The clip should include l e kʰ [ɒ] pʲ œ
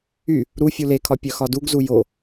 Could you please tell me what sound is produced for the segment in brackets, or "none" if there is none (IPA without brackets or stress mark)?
ɒ